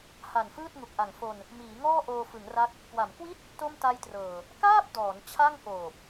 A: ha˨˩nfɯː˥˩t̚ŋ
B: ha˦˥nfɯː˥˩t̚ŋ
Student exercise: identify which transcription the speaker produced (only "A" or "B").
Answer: A